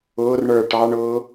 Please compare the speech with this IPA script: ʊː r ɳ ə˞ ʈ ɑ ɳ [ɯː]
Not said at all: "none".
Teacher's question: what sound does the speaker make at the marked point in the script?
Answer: ʊː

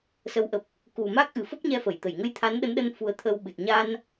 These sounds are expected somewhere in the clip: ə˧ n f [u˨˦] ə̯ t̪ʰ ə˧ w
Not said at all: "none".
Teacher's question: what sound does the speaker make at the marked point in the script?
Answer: u˨˦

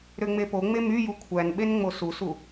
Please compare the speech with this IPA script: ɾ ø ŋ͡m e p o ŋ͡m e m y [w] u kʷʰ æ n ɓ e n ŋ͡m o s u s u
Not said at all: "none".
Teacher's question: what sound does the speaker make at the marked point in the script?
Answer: j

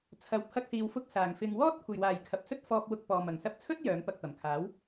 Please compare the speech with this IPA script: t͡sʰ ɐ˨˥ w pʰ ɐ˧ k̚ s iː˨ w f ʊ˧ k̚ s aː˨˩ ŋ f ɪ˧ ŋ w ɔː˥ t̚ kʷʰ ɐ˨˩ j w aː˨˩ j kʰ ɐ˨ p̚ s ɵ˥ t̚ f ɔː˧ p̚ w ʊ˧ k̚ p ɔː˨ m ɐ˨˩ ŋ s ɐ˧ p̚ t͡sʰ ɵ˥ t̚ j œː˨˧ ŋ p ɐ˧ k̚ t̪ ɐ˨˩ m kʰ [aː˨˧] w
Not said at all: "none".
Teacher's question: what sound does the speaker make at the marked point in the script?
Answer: aː˨˥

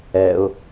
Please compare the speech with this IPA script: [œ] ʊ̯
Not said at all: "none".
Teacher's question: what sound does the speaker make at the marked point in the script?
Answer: ɛ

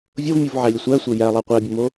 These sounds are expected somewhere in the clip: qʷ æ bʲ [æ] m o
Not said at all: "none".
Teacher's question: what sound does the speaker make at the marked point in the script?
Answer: ə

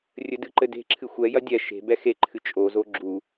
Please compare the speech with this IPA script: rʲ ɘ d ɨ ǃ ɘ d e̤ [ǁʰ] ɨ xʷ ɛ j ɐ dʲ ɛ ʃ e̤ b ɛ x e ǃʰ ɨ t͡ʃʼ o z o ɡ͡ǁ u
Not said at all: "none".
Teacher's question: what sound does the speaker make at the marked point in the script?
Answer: ǁʰ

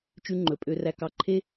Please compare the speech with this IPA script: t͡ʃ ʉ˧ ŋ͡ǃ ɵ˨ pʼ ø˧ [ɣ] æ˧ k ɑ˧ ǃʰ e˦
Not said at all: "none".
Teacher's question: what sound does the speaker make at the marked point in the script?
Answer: r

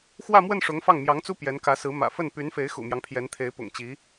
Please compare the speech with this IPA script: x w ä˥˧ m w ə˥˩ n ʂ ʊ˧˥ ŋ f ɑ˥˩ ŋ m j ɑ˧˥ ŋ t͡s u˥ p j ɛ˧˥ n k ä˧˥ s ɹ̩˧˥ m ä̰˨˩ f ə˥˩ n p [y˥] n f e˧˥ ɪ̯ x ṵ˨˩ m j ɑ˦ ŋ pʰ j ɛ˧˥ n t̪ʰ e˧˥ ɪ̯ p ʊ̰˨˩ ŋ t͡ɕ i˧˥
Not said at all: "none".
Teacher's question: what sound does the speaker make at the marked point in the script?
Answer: y˧˥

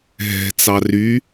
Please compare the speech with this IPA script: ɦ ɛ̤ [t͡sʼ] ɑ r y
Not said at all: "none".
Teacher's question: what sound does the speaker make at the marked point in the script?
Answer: t͡s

